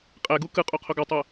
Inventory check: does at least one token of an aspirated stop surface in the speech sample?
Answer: yes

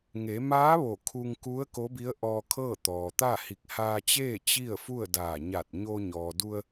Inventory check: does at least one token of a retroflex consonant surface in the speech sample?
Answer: no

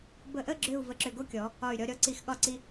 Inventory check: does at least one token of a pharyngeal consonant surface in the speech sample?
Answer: no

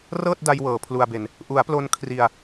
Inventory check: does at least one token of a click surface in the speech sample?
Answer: no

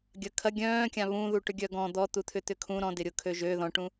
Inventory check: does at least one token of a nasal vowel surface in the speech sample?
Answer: yes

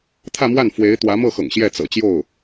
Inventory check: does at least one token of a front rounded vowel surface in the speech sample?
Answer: no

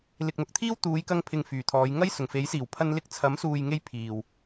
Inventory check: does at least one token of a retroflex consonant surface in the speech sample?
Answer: no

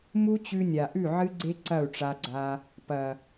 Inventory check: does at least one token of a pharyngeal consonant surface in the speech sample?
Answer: yes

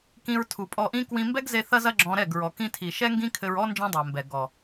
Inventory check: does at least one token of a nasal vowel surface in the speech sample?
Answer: yes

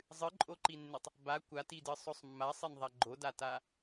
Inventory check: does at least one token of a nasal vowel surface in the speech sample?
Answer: no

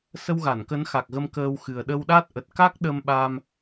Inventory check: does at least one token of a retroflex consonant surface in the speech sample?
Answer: no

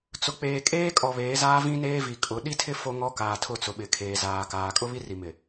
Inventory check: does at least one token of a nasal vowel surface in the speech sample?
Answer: yes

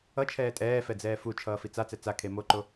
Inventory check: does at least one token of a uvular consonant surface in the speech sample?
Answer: no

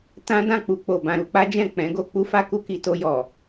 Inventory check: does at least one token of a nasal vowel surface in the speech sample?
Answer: yes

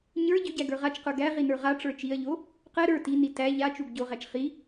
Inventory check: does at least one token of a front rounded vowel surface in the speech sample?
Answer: yes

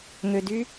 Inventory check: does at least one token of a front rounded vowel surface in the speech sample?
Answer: yes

